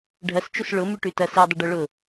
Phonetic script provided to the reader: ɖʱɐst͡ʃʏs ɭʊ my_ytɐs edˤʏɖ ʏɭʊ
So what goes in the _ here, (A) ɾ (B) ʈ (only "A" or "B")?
B